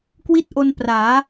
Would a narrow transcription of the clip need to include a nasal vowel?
no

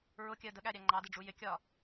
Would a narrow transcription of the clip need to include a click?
yes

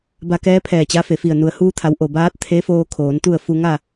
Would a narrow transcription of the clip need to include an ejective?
no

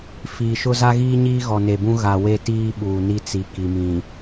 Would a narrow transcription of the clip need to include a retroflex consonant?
no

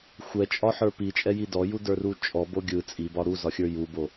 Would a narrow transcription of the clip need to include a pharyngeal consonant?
yes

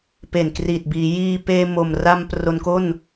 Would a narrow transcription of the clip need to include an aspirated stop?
no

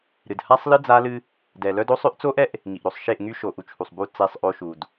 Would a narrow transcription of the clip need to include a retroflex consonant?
no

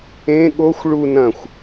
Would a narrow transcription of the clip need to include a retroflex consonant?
yes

